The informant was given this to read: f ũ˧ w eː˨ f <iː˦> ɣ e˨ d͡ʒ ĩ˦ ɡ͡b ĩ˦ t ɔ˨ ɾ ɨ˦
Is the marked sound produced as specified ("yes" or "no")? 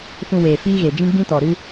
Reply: yes